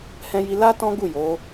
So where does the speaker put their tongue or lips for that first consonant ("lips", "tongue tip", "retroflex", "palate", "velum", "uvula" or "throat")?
throat